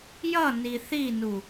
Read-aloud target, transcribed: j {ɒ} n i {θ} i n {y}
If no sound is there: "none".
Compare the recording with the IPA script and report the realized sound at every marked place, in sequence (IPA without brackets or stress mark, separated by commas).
ʌ, θ, u